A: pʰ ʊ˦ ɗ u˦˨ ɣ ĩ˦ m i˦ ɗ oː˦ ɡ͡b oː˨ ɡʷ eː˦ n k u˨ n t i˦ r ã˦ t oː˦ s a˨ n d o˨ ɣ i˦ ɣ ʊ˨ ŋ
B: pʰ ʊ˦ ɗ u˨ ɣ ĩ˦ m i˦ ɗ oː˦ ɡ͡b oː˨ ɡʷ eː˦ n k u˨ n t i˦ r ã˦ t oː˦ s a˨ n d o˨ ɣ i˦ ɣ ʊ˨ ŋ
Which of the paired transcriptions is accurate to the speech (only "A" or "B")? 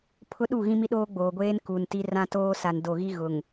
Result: A